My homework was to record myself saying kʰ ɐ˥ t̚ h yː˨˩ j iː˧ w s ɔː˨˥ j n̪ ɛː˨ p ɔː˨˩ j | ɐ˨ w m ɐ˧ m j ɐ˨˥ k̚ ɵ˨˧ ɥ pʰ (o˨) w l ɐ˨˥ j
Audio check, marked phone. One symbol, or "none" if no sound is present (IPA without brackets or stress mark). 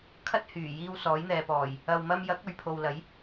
o˨